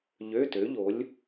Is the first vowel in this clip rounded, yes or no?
yes